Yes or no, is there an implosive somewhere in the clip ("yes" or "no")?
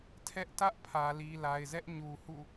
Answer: no